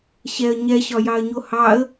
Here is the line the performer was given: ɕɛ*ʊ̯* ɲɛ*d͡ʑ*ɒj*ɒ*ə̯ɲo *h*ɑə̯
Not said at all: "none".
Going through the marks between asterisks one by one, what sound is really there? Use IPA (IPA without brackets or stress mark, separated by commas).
ə̯, ɕ, ɑ, h